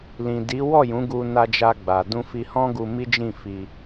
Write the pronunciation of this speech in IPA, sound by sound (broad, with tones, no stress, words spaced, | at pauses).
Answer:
lĩ˨di˨˦ wɔ˦˨jũ˨˦ ɡu˧ na˧d͡ʒa˧ɡ͡ba˨ dũ˧fi˧hɔ̃˦ɡu˧ mi˦d͡ʒĩ˦˨fi˧